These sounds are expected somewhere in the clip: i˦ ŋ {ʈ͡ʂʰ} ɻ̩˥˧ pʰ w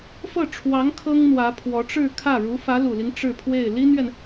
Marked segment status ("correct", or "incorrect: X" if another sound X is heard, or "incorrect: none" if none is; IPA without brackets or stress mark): incorrect: ʈ͡ʂ